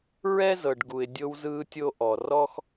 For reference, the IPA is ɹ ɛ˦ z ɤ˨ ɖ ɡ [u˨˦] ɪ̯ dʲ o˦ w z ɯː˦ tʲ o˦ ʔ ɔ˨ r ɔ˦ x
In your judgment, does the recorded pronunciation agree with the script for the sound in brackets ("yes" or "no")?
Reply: no